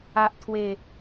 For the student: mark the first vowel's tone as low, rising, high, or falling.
low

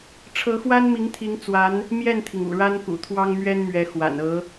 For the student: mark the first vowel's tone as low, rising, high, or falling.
rising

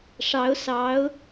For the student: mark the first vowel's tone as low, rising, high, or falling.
rising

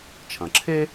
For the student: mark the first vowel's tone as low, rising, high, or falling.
low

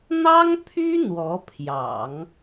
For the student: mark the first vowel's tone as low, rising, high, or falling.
high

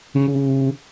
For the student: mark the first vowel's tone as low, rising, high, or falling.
high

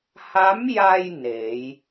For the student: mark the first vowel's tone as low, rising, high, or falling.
rising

